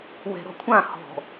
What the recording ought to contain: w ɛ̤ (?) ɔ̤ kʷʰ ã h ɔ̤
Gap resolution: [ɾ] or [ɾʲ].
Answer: ɾ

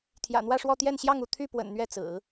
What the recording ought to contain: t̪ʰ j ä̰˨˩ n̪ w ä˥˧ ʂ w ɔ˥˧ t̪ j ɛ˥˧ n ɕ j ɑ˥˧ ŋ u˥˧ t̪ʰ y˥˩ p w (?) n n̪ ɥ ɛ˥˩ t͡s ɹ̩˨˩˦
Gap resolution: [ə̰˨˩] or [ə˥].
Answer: ə̰˨˩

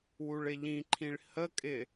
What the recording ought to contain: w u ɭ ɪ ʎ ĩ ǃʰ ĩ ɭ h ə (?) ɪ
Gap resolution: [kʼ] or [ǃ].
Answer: kʼ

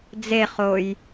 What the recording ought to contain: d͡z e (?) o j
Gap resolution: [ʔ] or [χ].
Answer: χ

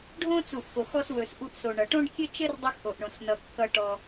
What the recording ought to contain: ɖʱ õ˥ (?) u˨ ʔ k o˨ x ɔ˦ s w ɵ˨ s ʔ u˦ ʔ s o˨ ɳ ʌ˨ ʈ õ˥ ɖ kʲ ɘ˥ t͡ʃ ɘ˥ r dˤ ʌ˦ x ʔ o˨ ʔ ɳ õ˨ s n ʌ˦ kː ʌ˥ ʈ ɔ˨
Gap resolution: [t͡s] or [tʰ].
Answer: t͡s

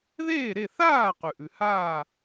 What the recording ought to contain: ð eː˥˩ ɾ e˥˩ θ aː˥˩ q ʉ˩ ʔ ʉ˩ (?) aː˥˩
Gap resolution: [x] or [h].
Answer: h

